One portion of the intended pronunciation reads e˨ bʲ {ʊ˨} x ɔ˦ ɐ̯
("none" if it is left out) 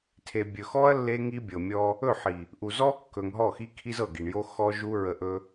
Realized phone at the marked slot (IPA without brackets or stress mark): ɵ˨